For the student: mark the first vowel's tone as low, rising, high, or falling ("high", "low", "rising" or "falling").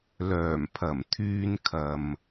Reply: low